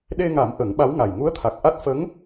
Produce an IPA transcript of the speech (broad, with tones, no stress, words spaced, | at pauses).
ɗe˧ŋa˨˩˦m ʔə˨˩˦ŋɓa˧˥wŋa˨˩j ŋu˧˥ə̯t̪ʰa˨˩k̚ʔa˦˥t̚ fə˧˥ŋ